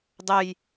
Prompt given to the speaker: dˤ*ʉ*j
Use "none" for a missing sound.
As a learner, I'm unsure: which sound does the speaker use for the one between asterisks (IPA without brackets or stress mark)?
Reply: ə